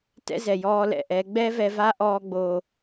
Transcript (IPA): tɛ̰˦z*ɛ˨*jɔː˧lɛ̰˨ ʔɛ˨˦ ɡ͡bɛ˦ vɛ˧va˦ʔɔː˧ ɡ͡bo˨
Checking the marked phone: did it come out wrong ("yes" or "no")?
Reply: no